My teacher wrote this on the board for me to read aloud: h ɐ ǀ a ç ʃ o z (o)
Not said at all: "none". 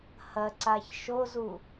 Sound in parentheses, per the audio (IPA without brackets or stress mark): u